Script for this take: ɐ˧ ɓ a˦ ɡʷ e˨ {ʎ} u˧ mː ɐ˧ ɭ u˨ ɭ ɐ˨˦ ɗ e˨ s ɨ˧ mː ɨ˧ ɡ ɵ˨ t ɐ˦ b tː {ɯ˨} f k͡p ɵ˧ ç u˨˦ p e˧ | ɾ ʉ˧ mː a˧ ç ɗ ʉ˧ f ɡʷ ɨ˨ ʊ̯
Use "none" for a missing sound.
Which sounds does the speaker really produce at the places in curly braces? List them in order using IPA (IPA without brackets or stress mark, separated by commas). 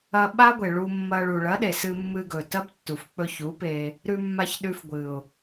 ɭ, u˨